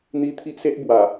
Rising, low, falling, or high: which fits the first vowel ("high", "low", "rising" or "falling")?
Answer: high